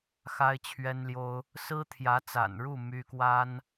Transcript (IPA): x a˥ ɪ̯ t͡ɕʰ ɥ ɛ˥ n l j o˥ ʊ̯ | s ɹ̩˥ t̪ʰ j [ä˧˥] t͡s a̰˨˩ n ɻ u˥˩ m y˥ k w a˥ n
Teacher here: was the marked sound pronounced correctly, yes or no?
yes